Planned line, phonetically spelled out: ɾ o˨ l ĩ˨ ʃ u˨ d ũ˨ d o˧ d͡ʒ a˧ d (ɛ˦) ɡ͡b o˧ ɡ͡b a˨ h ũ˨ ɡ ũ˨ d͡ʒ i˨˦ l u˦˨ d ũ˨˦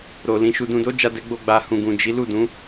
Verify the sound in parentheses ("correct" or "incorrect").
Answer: correct